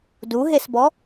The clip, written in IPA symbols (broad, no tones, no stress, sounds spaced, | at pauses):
d u ɦ e s b ɔ